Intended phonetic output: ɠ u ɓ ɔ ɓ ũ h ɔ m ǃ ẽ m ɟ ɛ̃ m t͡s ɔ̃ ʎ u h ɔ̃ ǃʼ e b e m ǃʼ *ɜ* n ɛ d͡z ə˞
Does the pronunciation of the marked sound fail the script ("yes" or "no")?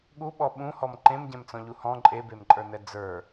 yes